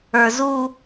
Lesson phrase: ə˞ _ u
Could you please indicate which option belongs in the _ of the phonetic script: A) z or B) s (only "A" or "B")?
A